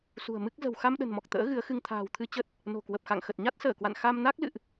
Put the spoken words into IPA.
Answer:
s ṳ˨˩ ə̯ m ɨ˦˥ k̚ z ə̤˨˩ w x a˧ m ɗ ə̤˨˩ n m ɔ˨˩ k̚ t̪ ə̰ː˧˥ ɣ ɨ˨˦ ə̯ x ɨ˧ ŋ t̪ʰ a̤ː˨˩ w t̪ʰ ɨ˧ t͡ɕ ə˦˥ t̚ | n o̤˨˩ k w ə˨˩ p̚ x a̰˧˨ ŋ x ə˨˩ t̚ ɲ a˦˥ t̚ s əː˧˩ k w a̰˧˨ n x a˧ m n a˦˥ k̚ l ɨ̰˧˨ ʔ

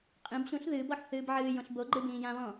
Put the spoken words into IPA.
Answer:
qʼ ĩ b ɕ ũ ɬ ð ɨː b ɔ ħ θ ɨː b ʕ ɨː j õ ɬ b o ɡ͡ǃ ɨ b ĩː j ã β ɔ̃

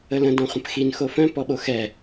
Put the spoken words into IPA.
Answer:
ə l ə̃ d ɔ̃ χʷ ə̃ p x i n x o f œ̃ p ɔ ɓ o x ɛ

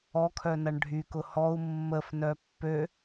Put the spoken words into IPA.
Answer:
ɔ kʰ œ n ɐ ɳ ɖʱ y k ʊ h ɔ u̯ mː ə f n œ pː ø

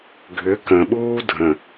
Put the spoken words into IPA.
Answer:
ɡʱ ʏ k ə̃ ɓ uː dʱ ə̃

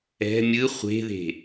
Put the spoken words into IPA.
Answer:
ɛ̤ mʲ ɯ χʷ e̤ ð e̤

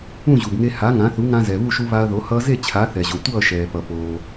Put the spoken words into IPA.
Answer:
ũ˥˩ ʑ u˩ b ŋ e˧ h a˩˥ ŋ ã˩˥ θ u˩˥ ŋ ã˧ z ɛ˩ β u˥˩ ʃ u˧ β a˧ ɐ̯ ð o˩˥ h ʌː˧ z e˥˩ t͡ɕʰ a˩˥ θ ɛ˩ ʑ o˩ tʷ ʌː˥˩ ʃ ɛː˩ p ʌ˩ p oː˩

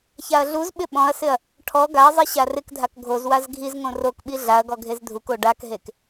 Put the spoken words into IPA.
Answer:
ç a ɐ̯ ɮ u z ɓ ɪ ɓ ɔ̃ ɐ̯ s ɪ ɐ̯ | ʈʰ ɔ ɡ a ɐ̯ zˤ i ɕ a r ɪ k dʱ a k ɡʱ o z w a z ɡʱ i z ŋ õ r o k ɓ i ɮ a ɐ̯ ɡ ɔ ɡʱ e z dʱ u k o ɖ a k ɦ e k

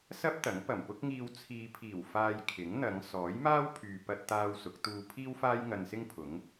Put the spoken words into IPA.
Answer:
s ɐ˥ p̚ t̪ ɐ˨˥ ŋ p ɐ˨˩ m p ʊ˥ k̚ ŋ iː˧ w t͡sʰ iː˨ pʰ iː˨˩ w f aː˧ j kʰ ɪ˨˥ ŋ n̪ ɐ˨˧ ŋ s ɔː˨˥ j m aː˥ w pʰ yː˨ p ɐ˧ t̚ t̪ aː˧ w s ʊ˨˥ k̚ t̪ uː˧ pʰ iː˥ w f aː˥ j ŋ ɐ˧ n s ɪ˥ ŋ pʰ ʊ˨˥ ŋ

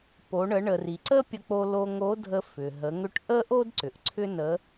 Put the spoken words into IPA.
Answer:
p o˩˧ ɳ ə˩˧ ɳ ə˩ r i˩ ǀ ə˥ pʲ ə˧ k͡p o˧ l o˧ ŋ o˧˥ dʱ ə˧ f ʏ˩ ɦ ə˩˧ ŋ ʏ˧˥ ʈ ʔ ə˥ ʔ o˥ d ǀ ʏ˩ ʔ ǀʰ ʏ˥ n ə˧˥

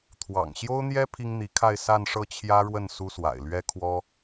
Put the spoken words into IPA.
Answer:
t̪ʰ w ɑ̰˨˩ ŋ ɕ j o˥ ʊ̯ n̪ j ɛ˥ pʰ i˥ ŋ n̪ i˧˥ kʰ a˥˧ ɪ̯ s a˥˧ n ʂ ɤ˥˩ t͡ɕʰ j ä˥ ɻ w ə˥˩ n s u˥ s w a̰˨˩ ɪ̯ l ɥ ɛ˥ kʰ w ɔ˥

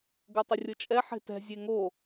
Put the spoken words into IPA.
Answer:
ɡ o tˤ ə rʲ ɤ t͡ʃʼ ɛ ħ e̤ t ɛ̤ zʲ e ŋ o

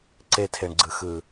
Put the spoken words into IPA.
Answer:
ǀ e tʰ e ɳ ɡ͡ǀ ɯ x ɯ

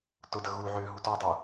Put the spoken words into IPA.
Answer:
t ʊ d ə ɣ u ʕ ʏː ɦ u t ɔ dˤ u

